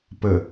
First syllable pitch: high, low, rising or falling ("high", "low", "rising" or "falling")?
low